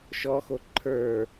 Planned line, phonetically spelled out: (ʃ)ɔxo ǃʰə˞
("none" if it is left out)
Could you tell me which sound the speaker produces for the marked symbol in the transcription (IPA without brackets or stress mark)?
ʃ